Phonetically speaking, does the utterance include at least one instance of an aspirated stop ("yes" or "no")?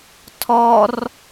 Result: yes